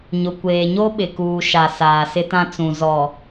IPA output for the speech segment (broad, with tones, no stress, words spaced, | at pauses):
ɲʊ˨ kʷeː˨ɲo˦ɓɪ˨kuː˨ ʃa˨ saː˨sɪ˦tã˦ t͡sũ˨ zɔ˨